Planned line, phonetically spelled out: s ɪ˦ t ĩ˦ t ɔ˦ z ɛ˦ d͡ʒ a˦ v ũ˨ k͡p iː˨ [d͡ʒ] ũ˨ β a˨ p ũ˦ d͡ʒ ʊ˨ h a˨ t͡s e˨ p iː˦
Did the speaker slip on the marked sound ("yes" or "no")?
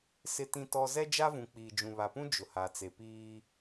no